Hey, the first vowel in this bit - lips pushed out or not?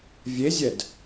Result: no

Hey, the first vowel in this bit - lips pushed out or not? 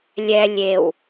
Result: no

